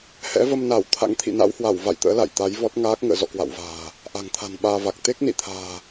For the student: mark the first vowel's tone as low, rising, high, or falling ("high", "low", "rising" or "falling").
rising